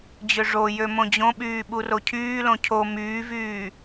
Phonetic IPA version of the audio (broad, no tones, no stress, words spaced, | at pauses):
d͡ʑøʐojø mõd͡ʑõɓyː ɓurocʰyːlõ cʰo myːvyː